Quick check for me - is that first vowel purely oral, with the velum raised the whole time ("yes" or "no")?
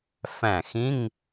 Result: no